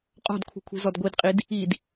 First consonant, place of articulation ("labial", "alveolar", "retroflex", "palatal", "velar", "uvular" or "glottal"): uvular